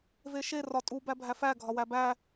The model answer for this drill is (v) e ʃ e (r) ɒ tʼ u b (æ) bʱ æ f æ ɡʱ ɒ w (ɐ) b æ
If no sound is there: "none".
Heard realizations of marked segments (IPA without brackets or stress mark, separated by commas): v, r, æ, æ